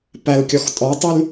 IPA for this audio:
p æ l kʲ ɔ x tʼ ɔ tˤ y l

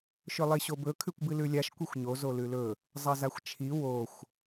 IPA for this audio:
ʃ ɵ lˠ i ɕ o b ɵ kʰ ʉ kʷ b ɨ l ʉ lʲ a ʃ kʷ i xʷ ɲ o z o l ʉ l ɵ | zˤ ɐ z a xʷ t͡ʃʰ i w o xʷ

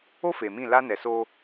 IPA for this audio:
o˦ f e˨ m ĩ˦˨ l a˦ n ɛ˨ s o˦

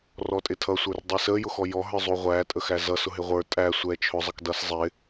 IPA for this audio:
r ɔ tʼ ɪ tʰ ʌ sʷ ə˞ r dˤ i s ə j ʊ x ɔ j ɔ ɦ ə˞ zˤ u ʁʷ æ tʼ ə x æ z ʌ s ʊ ɦ ɪ ʁʷ ə˞ tʼ æ sʷ ɛ t͡ʃʰ ʊ zˤ ʌ k d ʌ s zˤ ɪ

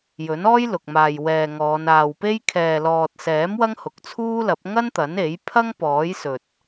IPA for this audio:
j ɵ˨˥ n ɔː˥ j l ʊ˨ k̚ m aː˨ j w ɛː˨ ŋ ɔː˨˧ n aː˨ w p e˥ j kʰ ɛː˨ l ɔː˨ t̚ s ɛː˨˥ m w ɐ˥ ŋ h ʊ˨ k̚ t͡sʰ uː˥ l ɐ˨˥ p̚ ŋ ɐ˥ n t̪ ɐ˨˥ n e˨˥ j pʰ ɐ˥ ŋ p ɔː˨˥ j s ɵ˨ t̚

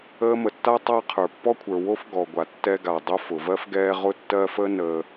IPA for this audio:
əː˦ m ə˩ tː a˥ tˤ a˥ qʰ ə˞˨ pː ɔ˥ kʷʰ ə˞˩ w o˥ f ɡ ɔ˩ ɡʷ a˩ tː ɛ˦ ɡ a˩ dˤ o˦ f ʊ˩ v ɜ˥ f ɡ ɛː˦ ʁ ʊ˦ tː ɜ˦ f ə˦ n əː˨

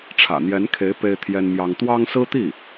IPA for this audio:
ʈ͡ʂʰ ä̰˨˩ n̪ j ɛ˧˥ n kʰ e˧˥ ɪ̯ p e˥ ɪ̯ t̪ʰ j ɛ˥ n m j ɑ˥ ŋ t̪ w ɑ˥ ŋ s ɹ̩˥ t̪ i˥˩

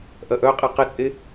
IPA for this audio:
ʔ ɐ ʔ œ qʼ e q ɪ t͡sʼ e

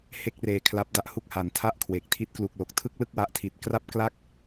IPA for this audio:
h e˥˩ k̚ r eː˧ kʰ l a˦˥ p̚ d a˦˥ ʔ h u˦˥ k̚ h a˨˩ n tʰ a˥˩ ʔ kʰ w e˨˩ k̚ tʰ i˦˥ t̚ k l u˨˩ k̚ l o˨˩ k̚ tʰ ɯ˥˩ k̚ l ɯ˥˩ k̚ w a˦˥ ʔ tʰ i˨˩ t̚ k r a˥˩ p̚ k l a˥˩ k̚

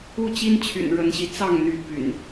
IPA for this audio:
u˥˨ t͡ɕ i˦ n t͡ɕʰ y̰˨˩ n ɻ ə˨˦ n ɕ i˨˦ t͡s ɑ˥˨ ŋ n̪ y˨˦ p y̰˨˩ n

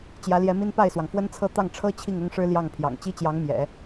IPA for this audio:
t͡ɕ j ä˧˥ l j ɛ˧˥ m i˥ n p a˥˩ ɪ̯ s w ɑ˩ ŋ f w ə˥ n t͡sʰ ɤ˥˧ t̪ ɑ˥˩ ŋ ʈ͡ʂʰ ɤ˥ t͡ɕʰ i˥˩ ŋ ʊ˥ ŋ ʂ ɻ̩˥ l j ɑ˥˩ ŋ pʰ j ɑ̰˨˩ ŋ t͡ɕ i˥ t͡ɕ j ɑ˧˥ ŋ m j ɛ̰˨˩˦

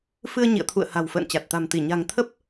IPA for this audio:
f ɨ˧ ə̯ ɲ ḭ˧˨ ə̯ t̪ʰ ṵ˧˨ ə̯ h a̤˨˩ w f ə̰ː˧˨ n t͡ɕ a˨˩ t̚ t̪ a̤˨˩ m t̪ i˧˩ ɲ a̤˨˩ ŋ t̪ʰ ə˦˥ p̚

